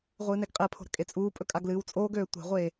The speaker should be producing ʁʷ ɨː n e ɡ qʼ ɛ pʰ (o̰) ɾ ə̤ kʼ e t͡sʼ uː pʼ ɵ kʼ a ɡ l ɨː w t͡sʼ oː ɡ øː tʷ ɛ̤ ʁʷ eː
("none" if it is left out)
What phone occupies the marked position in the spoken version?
o̤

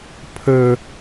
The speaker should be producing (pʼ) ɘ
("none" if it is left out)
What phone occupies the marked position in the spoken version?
pʰ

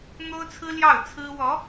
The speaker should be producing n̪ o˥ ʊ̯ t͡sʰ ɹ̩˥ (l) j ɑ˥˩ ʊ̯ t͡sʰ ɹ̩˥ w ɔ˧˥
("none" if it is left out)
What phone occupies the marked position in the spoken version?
l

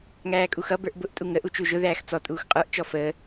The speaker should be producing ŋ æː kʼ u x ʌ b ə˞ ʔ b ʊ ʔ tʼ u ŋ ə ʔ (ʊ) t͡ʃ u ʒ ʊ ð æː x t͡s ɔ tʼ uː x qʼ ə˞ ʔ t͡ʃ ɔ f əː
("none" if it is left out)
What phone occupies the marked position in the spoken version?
u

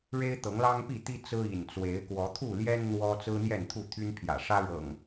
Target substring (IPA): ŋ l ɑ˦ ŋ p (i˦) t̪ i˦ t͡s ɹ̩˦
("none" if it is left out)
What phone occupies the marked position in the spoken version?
i˥˨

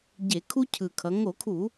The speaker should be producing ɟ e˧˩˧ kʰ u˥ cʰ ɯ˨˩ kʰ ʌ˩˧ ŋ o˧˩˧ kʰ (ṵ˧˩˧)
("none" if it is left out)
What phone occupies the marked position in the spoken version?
u˧˩˧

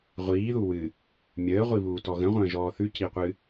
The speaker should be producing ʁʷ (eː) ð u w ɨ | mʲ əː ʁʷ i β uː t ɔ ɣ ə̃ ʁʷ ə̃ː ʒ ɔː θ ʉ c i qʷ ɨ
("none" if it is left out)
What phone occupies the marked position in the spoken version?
iː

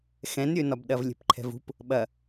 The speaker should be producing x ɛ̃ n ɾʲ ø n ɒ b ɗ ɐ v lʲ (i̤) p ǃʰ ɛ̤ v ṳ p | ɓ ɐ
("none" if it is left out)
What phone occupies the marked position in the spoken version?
e̤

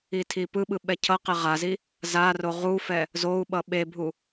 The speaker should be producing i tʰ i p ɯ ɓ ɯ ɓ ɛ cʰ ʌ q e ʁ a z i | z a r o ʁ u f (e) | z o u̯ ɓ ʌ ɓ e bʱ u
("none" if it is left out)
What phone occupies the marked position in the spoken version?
ɛ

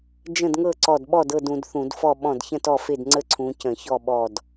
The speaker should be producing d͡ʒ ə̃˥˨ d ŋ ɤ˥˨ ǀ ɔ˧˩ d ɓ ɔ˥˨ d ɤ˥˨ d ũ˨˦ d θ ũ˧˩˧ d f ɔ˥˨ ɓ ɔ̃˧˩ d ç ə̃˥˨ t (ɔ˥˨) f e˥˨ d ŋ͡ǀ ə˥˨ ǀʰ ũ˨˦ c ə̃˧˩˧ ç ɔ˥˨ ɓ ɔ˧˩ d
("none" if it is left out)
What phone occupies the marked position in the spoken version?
ɔ˥˨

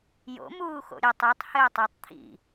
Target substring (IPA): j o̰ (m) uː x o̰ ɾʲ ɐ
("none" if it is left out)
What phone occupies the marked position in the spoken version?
m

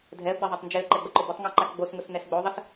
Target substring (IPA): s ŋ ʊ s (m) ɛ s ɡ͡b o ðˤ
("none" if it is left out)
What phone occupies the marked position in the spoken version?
n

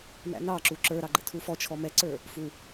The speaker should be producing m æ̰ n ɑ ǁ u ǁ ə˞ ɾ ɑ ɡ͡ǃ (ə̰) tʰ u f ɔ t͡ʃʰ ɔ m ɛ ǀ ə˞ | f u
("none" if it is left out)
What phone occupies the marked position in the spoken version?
ə̰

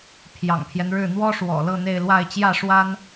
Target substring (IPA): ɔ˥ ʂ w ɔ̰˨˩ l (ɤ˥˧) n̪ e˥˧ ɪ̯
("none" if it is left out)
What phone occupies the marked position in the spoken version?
ɤ˥˧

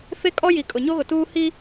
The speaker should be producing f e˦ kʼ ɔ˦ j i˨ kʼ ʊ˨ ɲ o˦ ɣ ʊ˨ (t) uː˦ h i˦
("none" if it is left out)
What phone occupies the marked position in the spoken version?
t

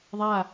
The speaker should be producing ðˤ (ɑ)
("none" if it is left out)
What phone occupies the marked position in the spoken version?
a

